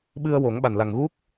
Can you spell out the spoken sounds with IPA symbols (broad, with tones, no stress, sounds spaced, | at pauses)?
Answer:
ɓ ɨ˧ ə̯ w o˨˩˦ ŋ ɓ a˨˩ n l a˨˩ ŋ ɣ u˦˥ k̚